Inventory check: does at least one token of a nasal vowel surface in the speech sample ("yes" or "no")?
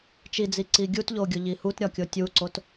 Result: no